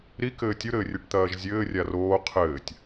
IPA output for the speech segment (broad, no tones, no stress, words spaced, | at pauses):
ɾikɘː tʲuɾɘːrʲeʈt̪ɐːʒ zʲɘːrʲa roː qʰɘːtʲ